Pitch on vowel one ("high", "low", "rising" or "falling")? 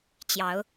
rising